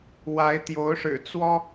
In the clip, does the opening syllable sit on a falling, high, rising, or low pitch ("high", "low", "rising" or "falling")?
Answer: rising